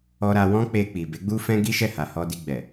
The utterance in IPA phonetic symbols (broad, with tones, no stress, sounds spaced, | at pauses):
ɔ˧ ɾ a˧ w ɔ̃˦ k͡p e˧ k͡p i˨ b e˨˦ ɡ͡b u˦ f ɛ̃˦ ɡ i˦ ʃ ɛ˦˨ h a˨ h ɔ˧ d i˧ ɡ͡b ɛ˨